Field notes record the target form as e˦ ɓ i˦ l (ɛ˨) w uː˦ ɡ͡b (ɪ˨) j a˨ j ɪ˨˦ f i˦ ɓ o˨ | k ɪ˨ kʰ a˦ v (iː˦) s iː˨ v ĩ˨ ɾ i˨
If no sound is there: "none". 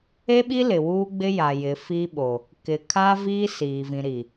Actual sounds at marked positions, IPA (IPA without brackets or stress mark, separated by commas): ɪ˨, ɪ˦, iː˦